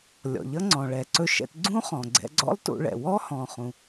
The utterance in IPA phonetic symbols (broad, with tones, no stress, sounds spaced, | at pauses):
lʲ ɔ̰˩ ʎ ʌ˥ ŋ͡ǀ ɔ̃˩ ɭ ɛ˩ ǀ ɵ˧ ʃ ɛ̰˧ t ɡ͡ǀ ũ˥ χ ɔ̃˩ ɡ͡ǀ ɛ̰˧ ɡ͡ǀ ɔ̰˥ lˠ t ṵ˧ ɭ ɛ̰˩ w ɔ˥ h ɔ̃˩ χ ũ˩